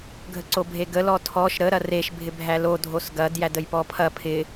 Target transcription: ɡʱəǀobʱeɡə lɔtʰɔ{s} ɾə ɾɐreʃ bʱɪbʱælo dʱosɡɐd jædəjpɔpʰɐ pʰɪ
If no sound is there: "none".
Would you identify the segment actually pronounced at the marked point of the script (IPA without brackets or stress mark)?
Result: ʃ